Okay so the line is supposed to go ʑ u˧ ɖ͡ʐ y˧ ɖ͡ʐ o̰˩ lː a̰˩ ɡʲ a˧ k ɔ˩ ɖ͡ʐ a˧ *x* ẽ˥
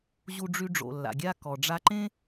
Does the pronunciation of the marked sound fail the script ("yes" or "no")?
yes